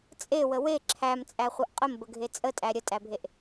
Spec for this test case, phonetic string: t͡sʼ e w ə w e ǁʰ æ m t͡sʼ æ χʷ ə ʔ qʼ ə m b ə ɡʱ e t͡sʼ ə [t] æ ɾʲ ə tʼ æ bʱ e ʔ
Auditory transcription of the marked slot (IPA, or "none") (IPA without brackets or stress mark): tʼ